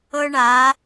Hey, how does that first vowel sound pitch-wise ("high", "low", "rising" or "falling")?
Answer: high